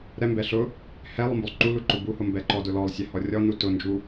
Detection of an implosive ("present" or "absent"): absent